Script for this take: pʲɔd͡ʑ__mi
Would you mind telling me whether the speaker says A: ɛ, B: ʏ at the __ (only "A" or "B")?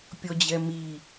A